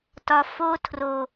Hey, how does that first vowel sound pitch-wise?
low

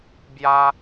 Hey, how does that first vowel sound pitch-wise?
high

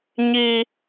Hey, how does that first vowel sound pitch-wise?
high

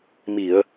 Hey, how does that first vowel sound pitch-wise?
low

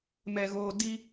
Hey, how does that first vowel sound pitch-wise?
low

